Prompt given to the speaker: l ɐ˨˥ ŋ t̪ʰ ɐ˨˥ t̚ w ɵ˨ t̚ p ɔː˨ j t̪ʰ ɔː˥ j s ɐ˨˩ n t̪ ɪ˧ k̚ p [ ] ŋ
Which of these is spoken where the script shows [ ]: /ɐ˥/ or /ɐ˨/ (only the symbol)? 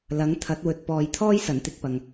ɐ˨